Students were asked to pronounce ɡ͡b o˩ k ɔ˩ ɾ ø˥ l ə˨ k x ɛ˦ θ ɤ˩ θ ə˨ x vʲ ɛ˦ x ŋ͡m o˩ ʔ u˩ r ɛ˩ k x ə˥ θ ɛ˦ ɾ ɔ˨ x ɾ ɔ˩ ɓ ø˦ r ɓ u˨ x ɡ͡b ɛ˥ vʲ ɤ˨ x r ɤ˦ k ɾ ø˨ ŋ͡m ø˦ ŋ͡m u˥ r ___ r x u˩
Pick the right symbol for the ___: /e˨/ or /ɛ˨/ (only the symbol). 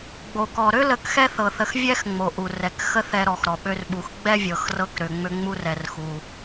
ɛ˨